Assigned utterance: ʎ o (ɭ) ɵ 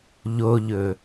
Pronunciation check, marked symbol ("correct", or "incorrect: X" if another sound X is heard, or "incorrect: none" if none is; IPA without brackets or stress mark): incorrect: ʎ